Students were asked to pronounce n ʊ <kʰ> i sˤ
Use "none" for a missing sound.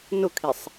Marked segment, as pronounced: kʰ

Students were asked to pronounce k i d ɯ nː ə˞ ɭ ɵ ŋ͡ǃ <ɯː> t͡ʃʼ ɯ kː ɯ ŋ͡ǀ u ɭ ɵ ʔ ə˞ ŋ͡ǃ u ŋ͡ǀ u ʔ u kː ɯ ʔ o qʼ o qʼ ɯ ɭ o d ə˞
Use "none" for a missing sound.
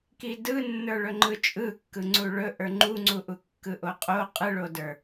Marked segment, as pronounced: ɯ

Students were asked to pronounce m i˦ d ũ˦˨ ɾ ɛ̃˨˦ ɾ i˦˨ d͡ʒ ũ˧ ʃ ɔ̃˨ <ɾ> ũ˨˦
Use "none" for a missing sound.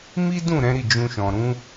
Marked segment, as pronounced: ɾ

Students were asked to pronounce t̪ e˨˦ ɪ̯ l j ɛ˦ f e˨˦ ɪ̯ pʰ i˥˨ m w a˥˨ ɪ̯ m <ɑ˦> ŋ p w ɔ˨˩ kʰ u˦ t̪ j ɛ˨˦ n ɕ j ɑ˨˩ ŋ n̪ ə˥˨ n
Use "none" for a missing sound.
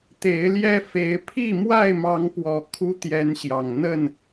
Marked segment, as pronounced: ɑ˨˦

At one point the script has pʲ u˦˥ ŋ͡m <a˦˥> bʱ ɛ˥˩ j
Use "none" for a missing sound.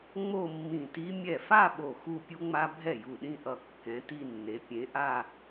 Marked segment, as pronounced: a˦˥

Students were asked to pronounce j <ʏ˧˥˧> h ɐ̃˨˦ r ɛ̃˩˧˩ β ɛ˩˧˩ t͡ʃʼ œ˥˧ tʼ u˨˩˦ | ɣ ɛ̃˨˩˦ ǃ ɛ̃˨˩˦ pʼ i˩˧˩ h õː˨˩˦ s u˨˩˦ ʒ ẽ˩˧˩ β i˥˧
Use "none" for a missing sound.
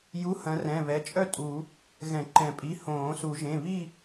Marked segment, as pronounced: u˧˥˧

